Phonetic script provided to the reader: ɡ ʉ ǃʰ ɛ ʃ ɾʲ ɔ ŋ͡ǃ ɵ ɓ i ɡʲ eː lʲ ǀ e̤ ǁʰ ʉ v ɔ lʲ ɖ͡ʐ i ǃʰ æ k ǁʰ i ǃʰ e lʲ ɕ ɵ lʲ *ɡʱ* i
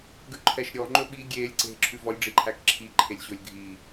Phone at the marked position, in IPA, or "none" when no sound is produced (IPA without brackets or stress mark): ɡʱ